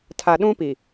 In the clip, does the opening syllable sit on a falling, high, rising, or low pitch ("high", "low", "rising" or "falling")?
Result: low